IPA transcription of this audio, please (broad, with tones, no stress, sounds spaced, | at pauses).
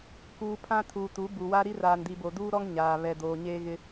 k uː˨ pʰ ã˦ tʰ uː˨ t u˨˦ b u˨ w a˦ ɾ i˦ r aː˨ n d i˨ b o˨ d uː˦ ɾ ɔ˦ ŋ ɲ aː˨ β ɛ˨ d oː˨ ɲ eː˦ ɣ ɪ˦